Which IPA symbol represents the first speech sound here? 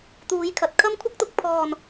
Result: t̪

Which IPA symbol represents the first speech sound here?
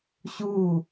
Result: ɕ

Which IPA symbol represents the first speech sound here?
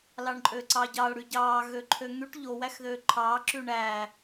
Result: l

